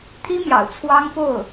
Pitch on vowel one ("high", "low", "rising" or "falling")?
high